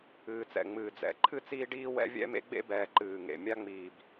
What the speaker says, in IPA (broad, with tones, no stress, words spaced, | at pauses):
ɨː˨t͡sɛ̰˨ ŋ͡mɨː˨d͡zɛ̰˨ ǃʰɨ˦t͡siː˦ɖiː˦ wɛ̰˦vʲɛ̰˦mḛ˦ ɡ͡bḛ˦bɛː˨ ǃɨː˨ŋḛ˨ mʲa˦ ŋ͡miː˨b